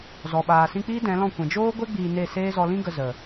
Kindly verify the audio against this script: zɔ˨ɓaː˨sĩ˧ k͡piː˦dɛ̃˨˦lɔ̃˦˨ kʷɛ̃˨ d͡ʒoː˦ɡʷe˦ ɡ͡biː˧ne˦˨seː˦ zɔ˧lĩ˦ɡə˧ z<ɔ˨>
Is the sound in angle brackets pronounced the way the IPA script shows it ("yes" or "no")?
no